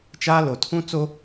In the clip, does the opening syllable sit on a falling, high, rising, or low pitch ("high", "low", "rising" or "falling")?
high